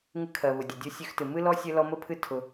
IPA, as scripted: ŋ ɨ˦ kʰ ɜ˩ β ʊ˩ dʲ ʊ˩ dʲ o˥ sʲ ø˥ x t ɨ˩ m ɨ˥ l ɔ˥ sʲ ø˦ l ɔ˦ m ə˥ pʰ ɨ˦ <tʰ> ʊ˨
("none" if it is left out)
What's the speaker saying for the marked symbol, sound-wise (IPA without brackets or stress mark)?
tʰ